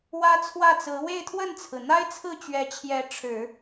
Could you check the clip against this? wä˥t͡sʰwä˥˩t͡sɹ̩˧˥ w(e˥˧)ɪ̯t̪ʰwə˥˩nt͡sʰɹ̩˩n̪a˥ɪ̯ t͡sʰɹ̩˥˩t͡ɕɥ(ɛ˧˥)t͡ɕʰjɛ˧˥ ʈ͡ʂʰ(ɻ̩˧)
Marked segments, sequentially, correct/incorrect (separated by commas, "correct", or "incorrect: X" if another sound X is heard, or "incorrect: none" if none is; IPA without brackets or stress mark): correct, correct, incorrect: ɻ̩˨˩˦